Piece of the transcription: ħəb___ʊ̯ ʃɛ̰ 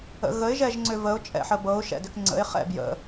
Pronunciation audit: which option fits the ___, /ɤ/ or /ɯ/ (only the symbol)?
ɤ